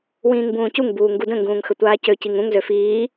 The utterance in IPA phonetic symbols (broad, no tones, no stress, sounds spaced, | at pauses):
w ĩː ŋ b ũː c u ŋ b uː ŋ ɡ u d ə̃ ŋ ɡ ũː ŋ x ə tʷ aː c ø c i ŋ ũ ŋ z ø f iː